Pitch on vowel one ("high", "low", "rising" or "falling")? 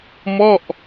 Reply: falling